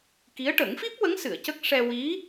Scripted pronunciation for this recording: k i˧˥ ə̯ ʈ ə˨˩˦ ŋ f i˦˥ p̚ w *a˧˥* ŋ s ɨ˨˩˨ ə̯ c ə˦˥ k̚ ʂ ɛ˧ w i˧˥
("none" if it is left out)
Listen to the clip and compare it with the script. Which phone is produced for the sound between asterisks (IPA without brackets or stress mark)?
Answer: ə˧˥